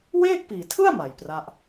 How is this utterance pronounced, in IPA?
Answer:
w eː˥˩ k̚ p iː˨˩ tʰ ɯ˥˩ a̯ m a˨˩ j p r a˦˥ ʔ

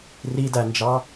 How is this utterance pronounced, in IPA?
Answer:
r i d æ n d͡ʒ ɑ

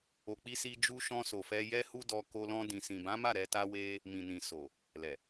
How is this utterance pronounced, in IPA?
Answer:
o˨ k͡p i˧ s i˧ d͡ʒ u˧ ʃ ɔ̃˧ s o˨ f ɛ˧ j ɛ˦ h u˦ d ɔ˧ k o˧ l ɔ̃˧ d ĩ˨ s ĩ˨ b ã˨˦ m a˦˨ ɾ ɛ˧ t a˦ w e˦ | m ĩ˨ n ĩ˨ s o˨ | l ɛ˨

